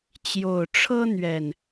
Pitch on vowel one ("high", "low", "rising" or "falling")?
low